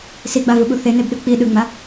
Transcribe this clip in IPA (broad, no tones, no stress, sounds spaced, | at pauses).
s i ɡ͡b a v ɯ ɓ u θ e n e b ɗ ɯ k͡p i ɗ ɯ ŋ͡m a